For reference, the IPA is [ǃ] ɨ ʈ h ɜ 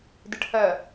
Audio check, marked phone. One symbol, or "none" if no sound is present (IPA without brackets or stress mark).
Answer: d